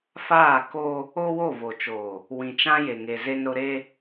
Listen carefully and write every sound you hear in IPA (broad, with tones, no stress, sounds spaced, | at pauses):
f aː˦˨ k o˦ | o˦ w o˦˨ v o˨ t͡ʃ oː˨ | w ĩ˨ t͡ʃ ã˦ j e˨ ŋ e˨ z e˦ n ɾ ʊ˦ ɾ e˦